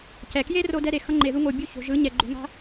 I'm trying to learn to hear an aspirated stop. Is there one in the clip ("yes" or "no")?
no